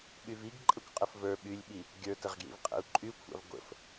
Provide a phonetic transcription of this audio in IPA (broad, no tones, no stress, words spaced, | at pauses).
ɓyviɡ ǃʼəkʷqʼəfvə˞ ɓylʲɓi | ɡʲə˞təʁɡjḭvqʼɛ̰u̯ ǃʼykʷʰa̰v ɡʷə̰f